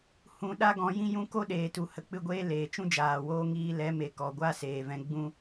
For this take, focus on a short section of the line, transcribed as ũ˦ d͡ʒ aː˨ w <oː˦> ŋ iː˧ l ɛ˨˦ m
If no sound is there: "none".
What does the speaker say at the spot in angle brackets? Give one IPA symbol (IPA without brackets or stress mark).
oː˦